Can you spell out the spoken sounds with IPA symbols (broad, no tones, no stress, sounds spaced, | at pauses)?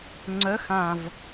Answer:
ŋ͡ǀ œ x ã v